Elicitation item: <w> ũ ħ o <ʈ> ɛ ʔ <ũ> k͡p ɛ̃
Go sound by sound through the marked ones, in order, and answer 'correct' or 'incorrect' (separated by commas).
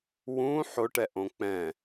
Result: correct, correct, incorrect